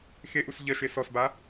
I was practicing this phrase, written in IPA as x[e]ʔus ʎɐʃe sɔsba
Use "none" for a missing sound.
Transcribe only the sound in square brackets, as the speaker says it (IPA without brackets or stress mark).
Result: e